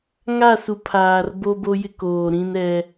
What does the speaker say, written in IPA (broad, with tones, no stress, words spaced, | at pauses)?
ŋa˦˨su˨ pʰaː˨r boː˦bo˦jɪ˦ koː˨ ɾĩ˦n ɛ˦